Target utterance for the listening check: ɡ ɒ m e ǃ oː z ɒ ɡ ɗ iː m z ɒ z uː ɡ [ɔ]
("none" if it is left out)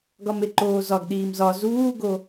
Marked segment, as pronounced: o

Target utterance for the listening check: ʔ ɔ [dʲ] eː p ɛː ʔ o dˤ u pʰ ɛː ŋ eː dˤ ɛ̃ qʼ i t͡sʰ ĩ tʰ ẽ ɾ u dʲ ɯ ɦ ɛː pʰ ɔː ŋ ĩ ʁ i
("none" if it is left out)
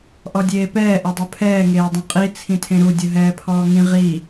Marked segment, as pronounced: dʲ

